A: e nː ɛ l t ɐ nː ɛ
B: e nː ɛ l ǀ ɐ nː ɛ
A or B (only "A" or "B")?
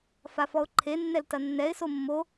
A